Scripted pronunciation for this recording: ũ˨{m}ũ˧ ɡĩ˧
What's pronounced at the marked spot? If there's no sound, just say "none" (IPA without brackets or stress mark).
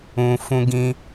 f